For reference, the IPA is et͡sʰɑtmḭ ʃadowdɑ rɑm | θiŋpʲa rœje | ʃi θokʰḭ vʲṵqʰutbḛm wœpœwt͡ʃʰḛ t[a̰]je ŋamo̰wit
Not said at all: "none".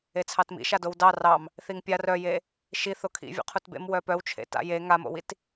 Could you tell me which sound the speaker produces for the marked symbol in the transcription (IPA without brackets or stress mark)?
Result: a̰